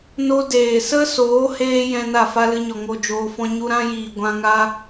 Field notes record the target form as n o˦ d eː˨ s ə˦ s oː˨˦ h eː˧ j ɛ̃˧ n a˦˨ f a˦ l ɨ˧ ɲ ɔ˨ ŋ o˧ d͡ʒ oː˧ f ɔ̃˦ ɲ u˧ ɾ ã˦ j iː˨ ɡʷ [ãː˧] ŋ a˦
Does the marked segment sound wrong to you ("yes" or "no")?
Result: yes